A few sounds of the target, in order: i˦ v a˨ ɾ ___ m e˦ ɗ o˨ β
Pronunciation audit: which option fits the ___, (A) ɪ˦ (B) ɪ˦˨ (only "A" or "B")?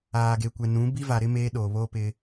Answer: A